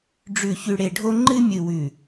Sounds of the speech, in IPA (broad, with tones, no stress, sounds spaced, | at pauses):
ɖ͡ʐ ʉ˨ ç ʉ˨ ɽ e˨ ɖʱ o˦ ŋ͡ǃ ɨ˦ mʲ ɨ˨ w ʉ˨